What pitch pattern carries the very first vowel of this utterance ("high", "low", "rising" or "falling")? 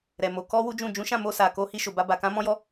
low